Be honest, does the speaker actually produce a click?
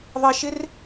no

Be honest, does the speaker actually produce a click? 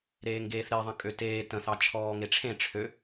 no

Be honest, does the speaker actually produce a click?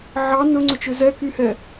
yes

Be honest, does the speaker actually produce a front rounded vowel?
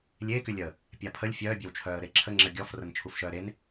yes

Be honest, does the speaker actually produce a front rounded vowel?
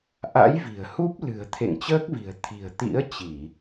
no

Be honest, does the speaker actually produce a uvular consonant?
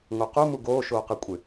yes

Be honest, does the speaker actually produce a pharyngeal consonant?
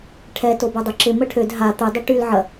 yes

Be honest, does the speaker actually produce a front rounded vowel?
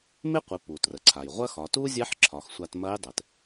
no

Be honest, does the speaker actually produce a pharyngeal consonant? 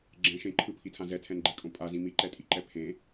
no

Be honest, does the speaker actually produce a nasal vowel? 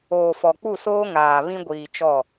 yes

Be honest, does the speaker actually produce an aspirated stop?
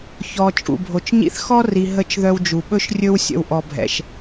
no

